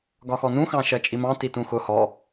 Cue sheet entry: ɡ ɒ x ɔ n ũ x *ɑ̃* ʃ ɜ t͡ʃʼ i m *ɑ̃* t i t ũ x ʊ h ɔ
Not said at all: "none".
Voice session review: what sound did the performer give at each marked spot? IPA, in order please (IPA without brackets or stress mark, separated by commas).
ɑ̃, ɑ̃